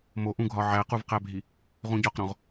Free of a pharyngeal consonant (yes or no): no